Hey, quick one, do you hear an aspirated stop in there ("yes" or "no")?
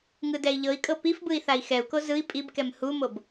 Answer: no